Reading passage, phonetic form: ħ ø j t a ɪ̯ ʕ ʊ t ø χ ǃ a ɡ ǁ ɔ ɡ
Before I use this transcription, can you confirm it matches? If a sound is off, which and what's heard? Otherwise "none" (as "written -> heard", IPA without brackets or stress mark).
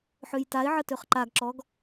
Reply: ʊ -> ə